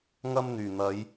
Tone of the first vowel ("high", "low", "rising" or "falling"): high